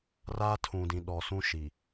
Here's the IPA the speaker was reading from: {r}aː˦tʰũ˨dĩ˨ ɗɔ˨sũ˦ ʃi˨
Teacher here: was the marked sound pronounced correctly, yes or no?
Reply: yes